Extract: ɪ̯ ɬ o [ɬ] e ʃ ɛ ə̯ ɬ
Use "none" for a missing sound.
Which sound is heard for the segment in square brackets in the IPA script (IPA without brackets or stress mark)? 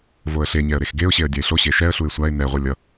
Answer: ɕ